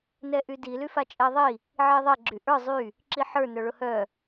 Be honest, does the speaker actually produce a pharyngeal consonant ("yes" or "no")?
yes